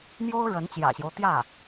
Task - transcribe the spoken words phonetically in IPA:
mjo˥ʊ̯ ɻə˧˥nt͡ɕjä̰˨˩ɕjo˦ʊ̯ t̪jä˥˩

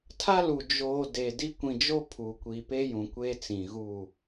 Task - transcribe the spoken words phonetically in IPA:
tʰa˦lu˨ d͡ʒoː˨ de˨di˦ kʷĩ˨d͡ʒo˦ pʰuː˨kʷi˨pe˦ jũ˨kʷeː˦t͡sĩ˨ɣu˦˨

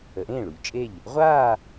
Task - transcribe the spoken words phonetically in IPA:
ə˩˧ʔẽː˥˩ ɭu˩˧ʎt͡ʃʼe˥˩ʎ | ʁʷaː˥˧

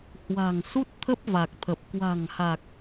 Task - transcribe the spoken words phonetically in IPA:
hwa̤˨˩ŋ su˦˥t̚t̪ʰə˦˥p̚va˨˩k̚t̪ʰə˨˩p̚ kwa̤˨˩ŋha˨˩k̚

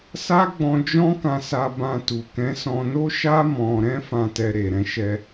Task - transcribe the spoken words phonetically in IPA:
sa˦ ɡ͡bɔ̃˧d͡ʒɔ̃˦ kã˧sa˧ bã˧tu˨ kɛ̃˨˦sɔ̃˧no˦ ʃa˦ mɔ̃˧ ɾɛ̃˧fã˨tɛ˨ ɾe˨ɾɛ̃˧ʃɛ˧

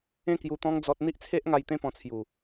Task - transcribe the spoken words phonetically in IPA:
ẽ˦kju˧t̪ɔ̃˦ŋ d͡zɔ˦t̚ n̪i˦ʔt͡sʰe˦ʔŋa˧j t̪ẽ˦pɔ̃˧t͡sʰju˨˩

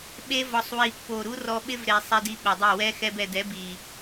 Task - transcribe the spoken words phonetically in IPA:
ɓe˧ vɔ˨sˤwi˨pːo˨ ɾu˦ rɔ˧ɓɪ˦vɾe˨ sˤi˧di˧ɓʊ˨dˤe˦˨ wɛ˧ xɛ˧bɛ˨dɛ˨˦ bi˨

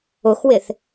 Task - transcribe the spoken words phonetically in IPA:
ʊxwɪθ

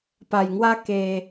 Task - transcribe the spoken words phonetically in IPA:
pa˧jŋwa˦ ke˦

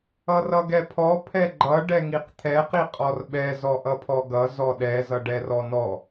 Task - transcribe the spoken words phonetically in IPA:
ʌrʌɡɛpʰɔ pʰɛɡ͡ǃʌ ɖɛŋiqt̪ʰɛ qiqʼɔrɓɛ zɔʔʌpʰɔɡʌ zɔɗɛ zʌɖɛrɔnɔ

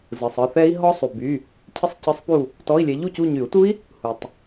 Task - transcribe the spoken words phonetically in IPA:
zɯ˨sˤɯ˦˨θɛ˦˥i̯ ɦɔ˦˥sˤu˨ by˧˥˧ | cʰɪ˦˥sˤcɯ˧˥˧sˤpu˦˨ | tɔ˧˥˧i̯lʲɛ˨˥ ʎu˦˨cu˦˨ɲy˨˩˦u̯tu˦˥i̯ | hu˨tˤ

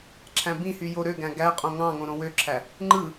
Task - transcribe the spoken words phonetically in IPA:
ǁʰæ̃bĩhy joɾøɡæ̃ ɡæqʼõ ŋɑ̃ŋõ ɾõwøǁʰæ | ŋ͡ǃɯ

